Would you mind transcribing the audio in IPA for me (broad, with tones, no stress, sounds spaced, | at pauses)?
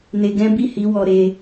n e˧ ɡ ɛ̃˦ b i˦˨ h i˨˦ w ɔ˧ ɾ e˧